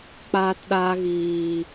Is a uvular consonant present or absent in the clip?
absent